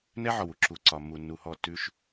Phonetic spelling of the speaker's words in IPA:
n ɛ˦ ʕ ɔ˨ w u˦ ǁ u˨ ǀ ɒ˨ mː u˨ nː u˨ h ɔ˦˨ t ʉ˦ ʃ

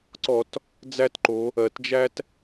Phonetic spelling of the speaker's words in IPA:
ǀ ɔ˧˩˧ t | d͡z æ˦ t ǃ o˩˧ | ɜ˩ t d͡ʒ æ˦ t

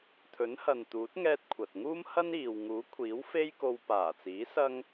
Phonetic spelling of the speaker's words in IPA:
t̪ʰ ɵ˨˥ n h ɐ˨ n t̪ uː˨˥ t̚ ŋ ɛː˧ t̚ kʷʰ ɐ˨ t̚ ŋ uː˥ m h ɐ˥ n iː˨ w ŋ uː˨˥ kʷʰ iː˨˥ w f e˥ j k o˧ w p aː˨˩ t͡s iː˨˥ s ɐ˥ ŋ

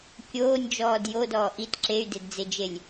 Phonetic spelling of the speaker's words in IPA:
kʲ oː nʲ d͡ʒ ɔː d j o d ɔː ʔ i t ǁ e y̯ d e d d͡z e d͡ʒ e lʲ

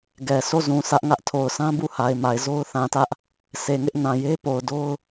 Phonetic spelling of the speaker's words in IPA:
ɡ ɛ˨ s o˦˨ z ũ˨ sʰ ä˦ ʔ ŋ ä˦ ʔ tʰ o˨ ʊ̯ s ã˦ b u˦˨ h a˨ ɪ̯ m a˨ ɪ̯ z o˦ ʊ̯ θ ã˨ t ä˦ ʔ | sʰ e˨ ŋ ɪ˦ ʔ n ã˨ j e˦ p o˨ ʊ̯ d o˦ ʊ̯

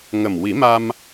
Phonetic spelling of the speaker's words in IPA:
ŋ ə˨˩ m w i˨˩˦ m a˧ m

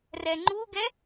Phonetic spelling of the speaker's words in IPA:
r ɛ ŋ͡ǃ u ɡ ɛ

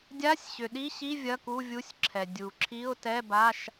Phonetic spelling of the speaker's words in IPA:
dʲ a˧˥˧ sʲ ɕ ʏ˩ ɗ i˧˥˧ ɕ i˧˥˧ vʲ ɐ˧˥˧ k u˧˥˧ vʲ u˧˥˧ sʲ ǁʰ ɛ˩ dʲ u˩ ǁʰ i˧˥˧ ʊ̯ t ɛ˧˥˧ b a˧˥˧ ʃ

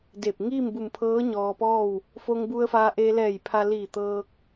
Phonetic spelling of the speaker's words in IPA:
d e˧˩ p̚ ŋ iː˥˨ m b u˧˩ m pʰ ɤː˧˥ ɲ ɔː˧ p ɔː˥˨ w | f o˧ ŋ b u˧ ə̯ f aː˧ ʔ e˧ l ɛː˧˩ j pʰ a˧ l iː˧˩ t̪ ɤː˧ k̚

